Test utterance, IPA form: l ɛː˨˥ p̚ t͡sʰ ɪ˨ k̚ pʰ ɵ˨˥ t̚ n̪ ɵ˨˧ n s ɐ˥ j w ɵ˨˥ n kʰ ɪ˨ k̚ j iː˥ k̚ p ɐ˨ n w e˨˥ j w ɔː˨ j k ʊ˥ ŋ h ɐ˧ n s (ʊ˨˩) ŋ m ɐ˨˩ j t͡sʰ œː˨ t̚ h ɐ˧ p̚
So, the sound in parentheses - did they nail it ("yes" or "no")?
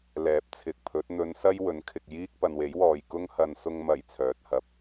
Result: no